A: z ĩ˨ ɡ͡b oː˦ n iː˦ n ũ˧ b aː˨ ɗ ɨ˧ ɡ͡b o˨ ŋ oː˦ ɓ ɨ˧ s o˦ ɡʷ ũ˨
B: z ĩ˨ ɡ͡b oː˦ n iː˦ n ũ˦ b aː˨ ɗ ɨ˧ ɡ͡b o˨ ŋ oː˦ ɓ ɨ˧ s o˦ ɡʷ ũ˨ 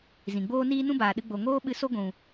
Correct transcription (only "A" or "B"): B